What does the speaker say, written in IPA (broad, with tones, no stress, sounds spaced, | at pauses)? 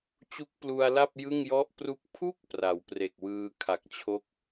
t͡ɕ u˦˥ k̚ p l u˧ a̯ l a˥˩ p̚ j ɯ˥˩ ŋ j ɔ˥˩ ʔ p r u˥˩ k̚ pʰ u˥˩ k̚ p r a˩˦ w p r e˨˩ k̚ w ɯː˧ kʰ a˨˩ k̚ t͡ɕʰ o˥˩ k̚